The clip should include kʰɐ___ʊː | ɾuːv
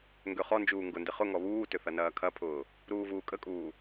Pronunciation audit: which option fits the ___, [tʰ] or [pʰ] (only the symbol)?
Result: pʰ